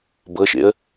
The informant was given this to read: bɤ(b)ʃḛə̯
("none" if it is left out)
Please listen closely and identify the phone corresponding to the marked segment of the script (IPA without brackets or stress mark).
none